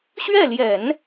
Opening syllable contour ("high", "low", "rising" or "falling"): falling